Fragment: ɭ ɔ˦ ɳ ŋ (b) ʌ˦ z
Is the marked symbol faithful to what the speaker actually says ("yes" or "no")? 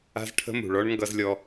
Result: no